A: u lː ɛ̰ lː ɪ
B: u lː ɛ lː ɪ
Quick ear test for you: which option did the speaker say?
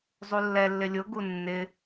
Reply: B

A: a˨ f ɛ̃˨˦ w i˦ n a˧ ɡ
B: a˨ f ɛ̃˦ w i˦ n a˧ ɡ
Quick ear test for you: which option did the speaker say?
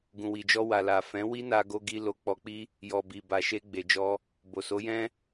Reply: A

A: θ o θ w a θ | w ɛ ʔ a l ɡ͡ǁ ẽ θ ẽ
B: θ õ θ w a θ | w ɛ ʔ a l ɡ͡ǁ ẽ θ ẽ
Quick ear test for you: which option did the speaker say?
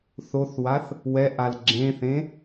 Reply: A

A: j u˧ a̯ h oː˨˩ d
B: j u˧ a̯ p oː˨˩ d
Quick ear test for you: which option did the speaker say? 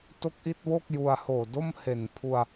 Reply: A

